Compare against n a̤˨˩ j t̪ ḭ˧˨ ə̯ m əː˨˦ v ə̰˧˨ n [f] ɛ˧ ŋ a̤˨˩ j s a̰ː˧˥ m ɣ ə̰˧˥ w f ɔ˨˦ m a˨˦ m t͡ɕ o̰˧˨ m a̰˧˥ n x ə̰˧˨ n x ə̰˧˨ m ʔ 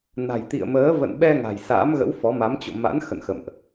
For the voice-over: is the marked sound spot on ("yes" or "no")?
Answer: no